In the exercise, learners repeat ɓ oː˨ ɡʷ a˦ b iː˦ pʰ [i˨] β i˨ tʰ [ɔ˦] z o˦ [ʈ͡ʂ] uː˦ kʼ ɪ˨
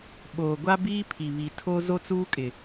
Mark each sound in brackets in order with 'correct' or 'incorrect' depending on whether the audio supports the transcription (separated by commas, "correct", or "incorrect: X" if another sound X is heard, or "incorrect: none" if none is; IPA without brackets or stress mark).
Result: correct, incorrect: o˦, incorrect: t͡s